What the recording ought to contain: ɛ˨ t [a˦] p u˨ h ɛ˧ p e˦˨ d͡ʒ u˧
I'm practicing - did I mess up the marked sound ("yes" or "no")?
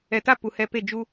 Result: no